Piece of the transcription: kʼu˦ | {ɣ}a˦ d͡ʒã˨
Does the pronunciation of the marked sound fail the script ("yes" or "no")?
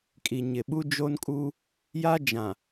yes